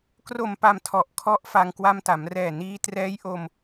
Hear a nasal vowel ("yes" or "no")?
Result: no